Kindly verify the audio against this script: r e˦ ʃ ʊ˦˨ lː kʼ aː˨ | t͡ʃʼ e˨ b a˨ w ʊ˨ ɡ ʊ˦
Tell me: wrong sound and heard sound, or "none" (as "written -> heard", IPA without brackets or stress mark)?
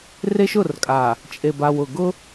lː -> r